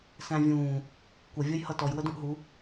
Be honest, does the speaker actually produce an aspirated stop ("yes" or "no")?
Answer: no